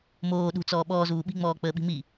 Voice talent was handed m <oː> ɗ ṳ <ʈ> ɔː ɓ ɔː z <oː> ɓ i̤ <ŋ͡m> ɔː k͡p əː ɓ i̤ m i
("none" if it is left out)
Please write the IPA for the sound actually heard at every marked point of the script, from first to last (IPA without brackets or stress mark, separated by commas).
oː, t͡s, uː, ŋ͡m